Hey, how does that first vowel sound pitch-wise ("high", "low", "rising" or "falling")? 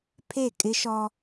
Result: falling